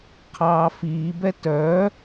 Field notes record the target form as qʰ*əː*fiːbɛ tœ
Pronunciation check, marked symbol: incorrect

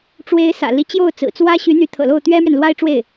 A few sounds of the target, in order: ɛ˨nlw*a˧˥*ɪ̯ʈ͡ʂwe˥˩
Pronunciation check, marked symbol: incorrect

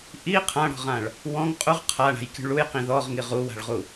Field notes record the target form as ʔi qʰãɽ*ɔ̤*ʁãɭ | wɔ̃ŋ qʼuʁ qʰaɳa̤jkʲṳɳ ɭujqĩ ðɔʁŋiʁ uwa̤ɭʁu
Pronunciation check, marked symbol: correct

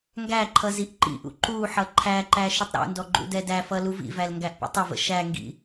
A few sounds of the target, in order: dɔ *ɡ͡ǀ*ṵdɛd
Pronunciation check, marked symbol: incorrect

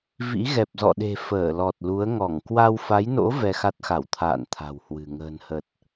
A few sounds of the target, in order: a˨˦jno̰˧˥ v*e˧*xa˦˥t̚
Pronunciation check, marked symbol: incorrect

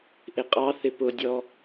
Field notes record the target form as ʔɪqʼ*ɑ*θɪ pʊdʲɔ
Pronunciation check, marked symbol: correct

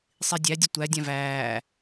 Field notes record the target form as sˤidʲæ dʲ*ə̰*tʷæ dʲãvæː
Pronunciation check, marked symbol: incorrect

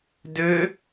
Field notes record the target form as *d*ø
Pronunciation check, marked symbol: correct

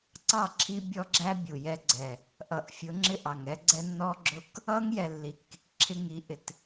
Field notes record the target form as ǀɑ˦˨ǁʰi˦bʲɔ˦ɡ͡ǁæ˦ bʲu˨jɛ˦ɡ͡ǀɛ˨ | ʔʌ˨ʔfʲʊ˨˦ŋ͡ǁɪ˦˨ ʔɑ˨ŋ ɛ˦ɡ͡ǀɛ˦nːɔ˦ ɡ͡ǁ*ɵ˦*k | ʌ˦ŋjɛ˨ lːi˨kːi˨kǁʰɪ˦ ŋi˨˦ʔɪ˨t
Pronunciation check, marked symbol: incorrect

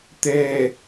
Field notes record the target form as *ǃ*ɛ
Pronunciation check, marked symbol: incorrect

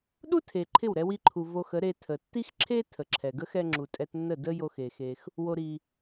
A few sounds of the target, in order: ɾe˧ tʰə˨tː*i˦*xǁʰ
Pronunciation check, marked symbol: correct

